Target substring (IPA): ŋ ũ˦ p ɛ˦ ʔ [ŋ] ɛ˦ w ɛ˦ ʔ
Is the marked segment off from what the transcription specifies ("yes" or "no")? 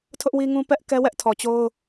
yes